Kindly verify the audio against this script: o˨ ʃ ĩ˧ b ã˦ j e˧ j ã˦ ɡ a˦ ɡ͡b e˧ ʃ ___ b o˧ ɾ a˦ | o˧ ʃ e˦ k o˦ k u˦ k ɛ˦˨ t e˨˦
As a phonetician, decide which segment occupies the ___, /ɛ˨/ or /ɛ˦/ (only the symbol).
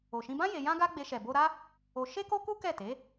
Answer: ɛ˨